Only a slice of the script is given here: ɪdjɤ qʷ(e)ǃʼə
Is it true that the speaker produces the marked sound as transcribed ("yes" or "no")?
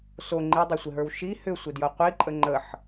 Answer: no